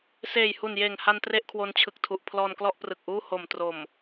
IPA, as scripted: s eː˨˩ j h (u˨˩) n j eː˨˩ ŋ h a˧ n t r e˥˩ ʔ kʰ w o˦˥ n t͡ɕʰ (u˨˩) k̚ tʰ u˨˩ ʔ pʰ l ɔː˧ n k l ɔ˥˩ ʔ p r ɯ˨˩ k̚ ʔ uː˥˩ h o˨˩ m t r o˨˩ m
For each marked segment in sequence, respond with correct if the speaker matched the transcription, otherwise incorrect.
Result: correct, incorrect

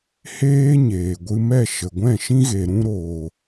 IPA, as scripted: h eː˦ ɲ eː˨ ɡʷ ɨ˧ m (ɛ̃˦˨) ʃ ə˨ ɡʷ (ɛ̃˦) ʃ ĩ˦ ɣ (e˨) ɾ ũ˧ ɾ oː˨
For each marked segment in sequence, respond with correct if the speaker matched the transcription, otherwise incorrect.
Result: incorrect, incorrect, correct

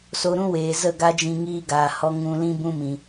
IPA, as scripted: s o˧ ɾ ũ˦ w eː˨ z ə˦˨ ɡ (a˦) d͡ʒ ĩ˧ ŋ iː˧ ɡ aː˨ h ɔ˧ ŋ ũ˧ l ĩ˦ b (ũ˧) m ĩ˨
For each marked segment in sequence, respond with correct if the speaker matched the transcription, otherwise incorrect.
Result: correct, correct

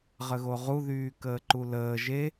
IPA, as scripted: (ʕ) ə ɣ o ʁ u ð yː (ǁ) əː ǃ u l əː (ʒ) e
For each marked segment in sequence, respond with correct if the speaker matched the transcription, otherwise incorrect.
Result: incorrect, incorrect, correct

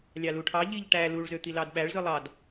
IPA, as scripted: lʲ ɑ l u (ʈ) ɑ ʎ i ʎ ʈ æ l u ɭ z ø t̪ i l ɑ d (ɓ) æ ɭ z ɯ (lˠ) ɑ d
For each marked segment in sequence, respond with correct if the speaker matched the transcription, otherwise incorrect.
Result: incorrect, correct, correct

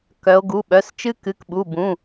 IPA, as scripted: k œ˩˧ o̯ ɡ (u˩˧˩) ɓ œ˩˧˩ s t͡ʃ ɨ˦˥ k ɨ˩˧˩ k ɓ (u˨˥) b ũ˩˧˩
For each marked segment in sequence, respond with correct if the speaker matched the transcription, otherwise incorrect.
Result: correct, incorrect

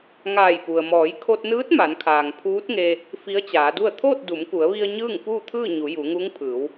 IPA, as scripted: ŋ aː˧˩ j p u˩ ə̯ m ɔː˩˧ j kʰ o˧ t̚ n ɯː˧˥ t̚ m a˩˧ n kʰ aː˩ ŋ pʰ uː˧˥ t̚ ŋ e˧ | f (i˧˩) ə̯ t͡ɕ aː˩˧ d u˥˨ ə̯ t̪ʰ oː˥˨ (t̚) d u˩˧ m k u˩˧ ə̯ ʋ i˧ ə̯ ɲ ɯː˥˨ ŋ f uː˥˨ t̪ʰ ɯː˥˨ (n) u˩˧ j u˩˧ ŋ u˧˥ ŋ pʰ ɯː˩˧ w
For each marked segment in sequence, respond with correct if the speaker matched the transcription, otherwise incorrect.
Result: incorrect, correct, incorrect

